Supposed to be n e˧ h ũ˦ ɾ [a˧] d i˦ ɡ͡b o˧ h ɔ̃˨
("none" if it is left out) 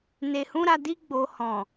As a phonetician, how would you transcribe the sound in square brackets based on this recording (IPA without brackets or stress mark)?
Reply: a˧